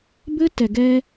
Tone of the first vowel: high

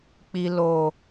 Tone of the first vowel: low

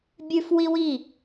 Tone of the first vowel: high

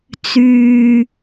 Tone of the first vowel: low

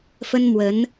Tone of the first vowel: high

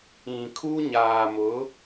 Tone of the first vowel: low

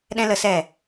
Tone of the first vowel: high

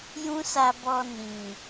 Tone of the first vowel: high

